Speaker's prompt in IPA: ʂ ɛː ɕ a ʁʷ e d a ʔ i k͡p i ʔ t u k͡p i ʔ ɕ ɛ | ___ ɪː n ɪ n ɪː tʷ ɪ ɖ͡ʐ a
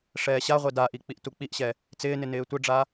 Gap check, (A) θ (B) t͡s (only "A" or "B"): B